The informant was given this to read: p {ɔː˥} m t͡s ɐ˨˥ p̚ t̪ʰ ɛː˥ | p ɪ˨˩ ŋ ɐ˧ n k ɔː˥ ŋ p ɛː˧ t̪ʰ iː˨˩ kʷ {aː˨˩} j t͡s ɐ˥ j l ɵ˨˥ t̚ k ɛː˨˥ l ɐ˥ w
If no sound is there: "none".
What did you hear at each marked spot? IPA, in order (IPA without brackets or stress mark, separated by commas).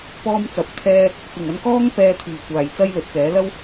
ɔː˥, aː˨˩